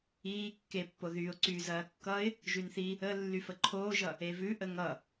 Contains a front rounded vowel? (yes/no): yes